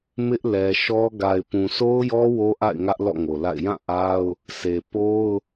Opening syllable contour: high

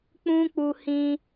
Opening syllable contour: high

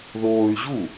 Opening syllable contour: high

